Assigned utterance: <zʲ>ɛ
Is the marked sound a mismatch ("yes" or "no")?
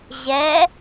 yes